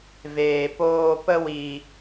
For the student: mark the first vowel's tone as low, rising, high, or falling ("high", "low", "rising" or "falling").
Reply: low